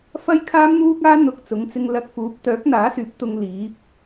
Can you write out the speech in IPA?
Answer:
f ɐ˥ j kʰ aː˥ m n̪ uː˥ k̚ aː˥ n̪ ʊ˧ k̚ t͡s ʊ˨˥ ŋ t͡s ɪ˧ ŋ l ɐ˧ k̚ f uː˨˥ p̚ t̪ œː˨˥ k̚ n̪ aː˨˥ s yː˨˥ p̚ t̪ ʊ˧ ŋ l iː˨˥ p̚

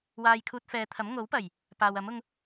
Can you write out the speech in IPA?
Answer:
w aː˧ j kʰ uː˧ t̚ f ɛː˨˧ t̪ʰ ɐ˨˥ m ŋ o˨˥ w p ɐ˨˩ j | p aː˨ w ɐ˨˥ m ʊ˧ ŋ

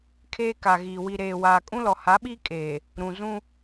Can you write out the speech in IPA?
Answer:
kʰ eː˦ k a˨ ɣ iː˨ w i˨ ɾ eː˨ w aː˨ kʼ ũ˦ l ɔ˨ h a˨˦ ɓ iː˦ kʼ eː˨ | ɾ ũ˨ z ũ˦

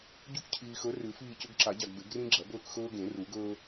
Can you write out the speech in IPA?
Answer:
ɟ u˦ k cʰ iː˨ x ɵ˨˦ r ʉ˨˩˦ f iː˦˨ c ɵ˦ ɡ ǁ a˨˩˦ ɟ a˨ ɡ b e˨˩˦ ɡ r ĩ˦ ɡ͡ǁ ɐ˨˩˦ b ɵː˦˨ k x ɵː˦ ɡ ẽ˨˩˦ r u˨˩˦ ɡ ɵː˦

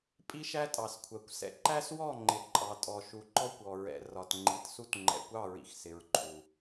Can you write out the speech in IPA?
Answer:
pʼ i˦ ʃ æ˦ tʼ ɑ˨ s kʷʰ ɜ˨ kʷ s ɛ̰˨ ǃ æ˦ s w ɔ˦˨ ŋ͡ǃ ɪ˨ ǃʼ ɑ˨ tʼ ɔ˨ ʃ u˨ ǃ ɔ˦ kʷ ɔ˨ ɹ ɛ̰˨ r ɒ˨ t ŋ͡ǃ i˨ t s u˦ t ŋ͡ǃ ɛ̰˨ kʷ ɑ˦˨ ɹ ḭ˨ x s ɪ˨ ɹ ǃʰ u˨

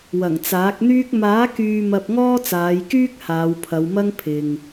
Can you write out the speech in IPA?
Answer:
w ɐ˨˩ ŋ t͡s aː˨˥ k̚ n̪ yː˥ k̚ m aː˨˥ k yː˨ m ɐ˧ p̚ ŋ ɔː˥ t͡s aː˨˧ j k yː˥ k̚ h aː˨˧ w pʰ ɐ˨˧ w m ɐ˥ ŋ pʰ ɪ˨ ŋ

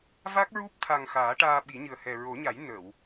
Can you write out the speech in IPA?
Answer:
v a˦˥ k̚ ɹ u˦˥ p̚ t̪ʰ a˨˩ ŋ x aː˨˩˦ ʈ aː˧ ɓ i˨˩˦ ɲ ɨ˨˩ ə̯ h ɛ˨˩ ɹ o˨˩˦ ɲ a˨˩˦ j n ə˨˩˨ w

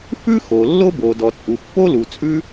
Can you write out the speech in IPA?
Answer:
f ʉ˥ x o˩ lː o˥ b o˩ d ɔ˩ t͡sʼ u˩ pː o˥ l u˩ t͡sʼ ʉ˥

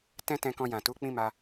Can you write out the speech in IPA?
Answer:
t ɛ̃˦ t ɛ̃˧ k ɔ̃˧ j ã˨ t u˨˦ k͡p ĩ˦ m a˧

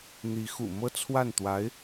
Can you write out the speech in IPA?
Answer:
n̪ i˧˥ x ṵ˨˩ m ɤ˥˧ t͡sʰ w a˥˩ n t̪ w a˧˥ ɪ̯

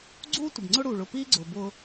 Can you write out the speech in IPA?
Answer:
ɡ͡ǀ uː˦ tʷ ə˨ b ŋ͡ǀ ʊ˦ ɽ uː˨ ɭ ʊ˦˨ p iː˦ ɡ͡ǀ ʊː˨ b ʊː˦

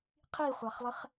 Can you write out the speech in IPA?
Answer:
qʰ i χʷ a χ lˠ ɪ χ

